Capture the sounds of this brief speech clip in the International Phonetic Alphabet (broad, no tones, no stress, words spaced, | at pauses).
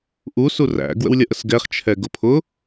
ʔu suræ̰ ɡwə̰wlʲʌʔəsɡɛχ t͡ʃʰɛɡʊpʰʊ